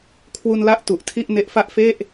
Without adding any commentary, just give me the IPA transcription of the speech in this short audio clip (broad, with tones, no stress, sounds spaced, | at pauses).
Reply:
kʰ w u˧ n l a˦˥ ʔ t u˨˩ ʔ tʰ i˥˩ ʔ n e˦˥ ʔ f a˥˩ ʔ f e˥˩ ʔ